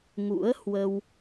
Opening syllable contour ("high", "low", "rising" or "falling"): rising